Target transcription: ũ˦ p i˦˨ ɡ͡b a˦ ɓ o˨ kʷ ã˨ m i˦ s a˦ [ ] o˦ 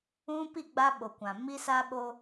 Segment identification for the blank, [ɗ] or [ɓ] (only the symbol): ɓ